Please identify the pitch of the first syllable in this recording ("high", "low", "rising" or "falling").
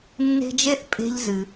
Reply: high